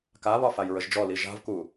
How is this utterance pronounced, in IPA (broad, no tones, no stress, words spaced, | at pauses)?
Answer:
kaβɒ fajɹəʒd͡ʒɔli ʒa̤vku